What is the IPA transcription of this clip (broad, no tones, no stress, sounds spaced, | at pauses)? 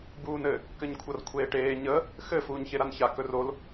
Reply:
b uː n ɘ | k ɘ ɲ kʷʰ ʌ r kʷʰ eː ʈ eː ɲ ə | x ɘ f uː ɲ ç e ɾ a n ç a k ɵ r o l